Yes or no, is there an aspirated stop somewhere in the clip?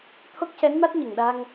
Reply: yes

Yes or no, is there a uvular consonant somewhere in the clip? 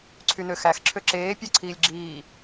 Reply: no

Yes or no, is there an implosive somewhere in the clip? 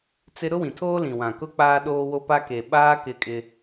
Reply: yes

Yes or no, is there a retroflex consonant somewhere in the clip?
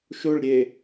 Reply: yes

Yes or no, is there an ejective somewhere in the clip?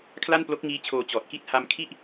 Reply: no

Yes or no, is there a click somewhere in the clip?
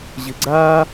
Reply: yes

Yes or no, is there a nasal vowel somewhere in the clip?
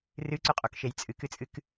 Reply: no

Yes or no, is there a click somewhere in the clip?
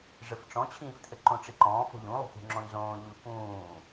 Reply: yes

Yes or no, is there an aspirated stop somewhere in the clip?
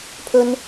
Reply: yes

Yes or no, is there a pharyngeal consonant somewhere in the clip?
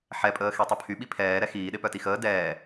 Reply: yes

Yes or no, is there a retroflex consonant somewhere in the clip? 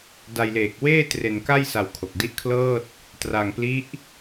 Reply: no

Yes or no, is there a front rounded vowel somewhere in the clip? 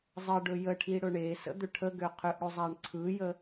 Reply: yes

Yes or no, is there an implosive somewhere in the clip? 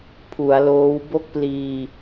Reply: no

